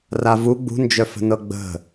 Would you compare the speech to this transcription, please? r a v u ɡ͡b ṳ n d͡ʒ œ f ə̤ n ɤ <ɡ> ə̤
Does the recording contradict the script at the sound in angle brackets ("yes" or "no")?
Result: yes